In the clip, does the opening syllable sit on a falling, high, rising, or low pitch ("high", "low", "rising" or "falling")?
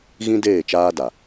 high